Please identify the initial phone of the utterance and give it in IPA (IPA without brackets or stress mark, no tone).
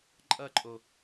ǃʼ